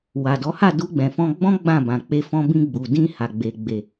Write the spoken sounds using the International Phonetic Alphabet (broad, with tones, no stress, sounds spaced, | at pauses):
w a˨ d ɔ˨˦ h a˦˨ d u˧ ɡ͡b ɛ̃˨ f ɔ̃˧ ɡ͡b ɔ̃˦ ɡ͡b ã˦˨ b ã˨ k͡p e˧ f ɔ̃˧ b ĩ˧ ɡ͡b u˨ d ĩ˧ h a˨ ɡ͡b e˨ ɡ͡b e˨